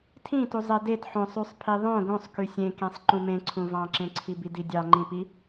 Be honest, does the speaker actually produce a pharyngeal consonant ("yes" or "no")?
yes